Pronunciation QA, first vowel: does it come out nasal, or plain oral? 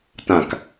nasal